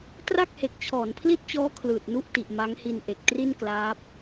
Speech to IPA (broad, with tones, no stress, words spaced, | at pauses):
tra˥˩k̚he˨˩k̚ t͡ɕʰɔː˩˦npʰli˥˩t̚t͡ɕɔː˦˥ kʰlɯː˨˩t̚nu˥˩ʔti˨˩ʔ ma˦˥ŋhi˧n ʔe˨˩k̚tri˥˩nklaː˦˥p̚